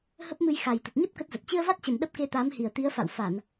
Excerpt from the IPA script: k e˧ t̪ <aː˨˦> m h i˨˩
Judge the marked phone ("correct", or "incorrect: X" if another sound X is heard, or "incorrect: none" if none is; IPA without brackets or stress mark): correct